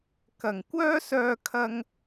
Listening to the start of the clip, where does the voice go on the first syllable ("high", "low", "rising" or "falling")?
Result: low